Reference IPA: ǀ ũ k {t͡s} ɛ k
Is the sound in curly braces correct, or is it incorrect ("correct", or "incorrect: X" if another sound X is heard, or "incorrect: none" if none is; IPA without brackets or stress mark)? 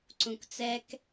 correct